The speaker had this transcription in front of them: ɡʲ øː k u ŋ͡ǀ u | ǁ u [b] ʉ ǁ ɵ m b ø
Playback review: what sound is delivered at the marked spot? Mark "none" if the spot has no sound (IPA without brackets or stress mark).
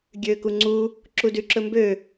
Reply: d